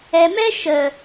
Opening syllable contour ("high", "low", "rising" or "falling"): low